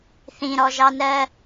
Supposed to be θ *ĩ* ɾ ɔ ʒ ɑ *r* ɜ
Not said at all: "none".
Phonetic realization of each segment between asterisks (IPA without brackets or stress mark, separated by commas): ĩ, n